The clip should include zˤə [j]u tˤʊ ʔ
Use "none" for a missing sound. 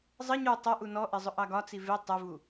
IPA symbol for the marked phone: ɲ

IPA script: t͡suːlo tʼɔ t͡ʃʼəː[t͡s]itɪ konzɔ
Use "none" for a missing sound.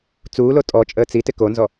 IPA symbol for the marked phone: t͡s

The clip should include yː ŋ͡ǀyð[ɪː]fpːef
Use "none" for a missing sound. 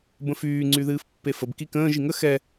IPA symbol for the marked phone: ɨː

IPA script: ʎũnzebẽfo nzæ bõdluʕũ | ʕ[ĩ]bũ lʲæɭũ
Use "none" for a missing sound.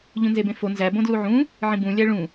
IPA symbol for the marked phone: ĩ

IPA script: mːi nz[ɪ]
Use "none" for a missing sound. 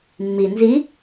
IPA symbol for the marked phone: i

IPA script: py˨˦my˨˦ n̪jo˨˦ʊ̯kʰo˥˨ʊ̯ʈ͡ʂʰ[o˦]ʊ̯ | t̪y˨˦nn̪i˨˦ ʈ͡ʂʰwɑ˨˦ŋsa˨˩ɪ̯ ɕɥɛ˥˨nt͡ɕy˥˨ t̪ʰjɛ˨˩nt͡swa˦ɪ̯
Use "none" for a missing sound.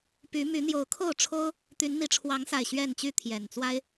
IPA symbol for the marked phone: o˦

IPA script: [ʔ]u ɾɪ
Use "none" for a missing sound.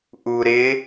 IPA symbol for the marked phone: ʔ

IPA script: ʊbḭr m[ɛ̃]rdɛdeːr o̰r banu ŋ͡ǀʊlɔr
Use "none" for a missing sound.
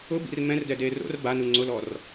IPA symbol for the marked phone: ɛ̃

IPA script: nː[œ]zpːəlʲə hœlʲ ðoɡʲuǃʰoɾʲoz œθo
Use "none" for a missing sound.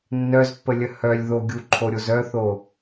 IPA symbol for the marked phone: œ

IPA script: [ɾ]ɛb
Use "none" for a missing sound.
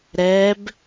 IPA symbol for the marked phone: ɾ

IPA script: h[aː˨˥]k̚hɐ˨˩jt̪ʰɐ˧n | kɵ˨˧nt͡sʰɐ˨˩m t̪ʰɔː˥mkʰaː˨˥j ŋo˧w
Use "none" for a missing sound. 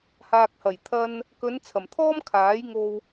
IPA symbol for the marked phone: aː˨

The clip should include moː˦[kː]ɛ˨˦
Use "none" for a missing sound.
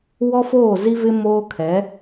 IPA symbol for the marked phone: kʰ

